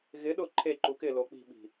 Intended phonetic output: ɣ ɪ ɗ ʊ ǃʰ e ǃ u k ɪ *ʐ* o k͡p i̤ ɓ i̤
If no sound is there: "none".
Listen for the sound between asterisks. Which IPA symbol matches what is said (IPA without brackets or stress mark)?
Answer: l